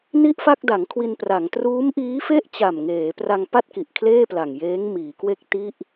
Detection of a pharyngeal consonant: absent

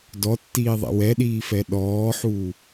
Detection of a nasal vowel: absent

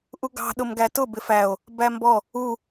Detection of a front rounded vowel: absent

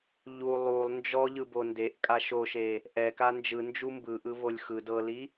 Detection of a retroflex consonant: absent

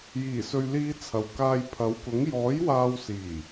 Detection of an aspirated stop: present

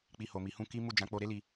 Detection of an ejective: absent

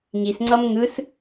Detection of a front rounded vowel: absent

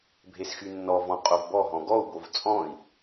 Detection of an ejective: present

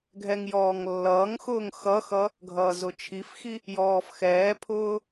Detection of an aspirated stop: present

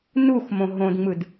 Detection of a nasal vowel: present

